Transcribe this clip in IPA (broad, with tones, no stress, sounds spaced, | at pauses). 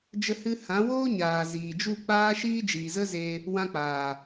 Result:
d͡ʒ ə˧ h ɨ˧ h ã˨˦ w oː˦ ɲ aː˨ z iː˨ d͡ʒ u˦˨ k͡p aː˦ ʃ iː˦ d͡ʒ iː˨ z ə˦ z e˧ | w ã˧ k͡p aː˨